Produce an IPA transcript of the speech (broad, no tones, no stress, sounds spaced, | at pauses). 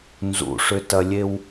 n z ṵ ʂ ʏ t ɐ lʲ e w